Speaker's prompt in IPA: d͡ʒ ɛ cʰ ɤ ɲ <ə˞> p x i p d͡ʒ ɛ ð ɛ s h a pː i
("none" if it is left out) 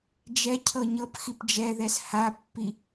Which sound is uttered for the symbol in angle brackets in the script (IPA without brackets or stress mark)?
ɤ